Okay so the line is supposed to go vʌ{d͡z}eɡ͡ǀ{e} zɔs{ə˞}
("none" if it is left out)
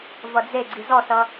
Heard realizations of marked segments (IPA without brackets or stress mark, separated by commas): d͡z, i, ʌ